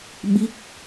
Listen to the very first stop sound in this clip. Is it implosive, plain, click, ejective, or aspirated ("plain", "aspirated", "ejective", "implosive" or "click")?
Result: implosive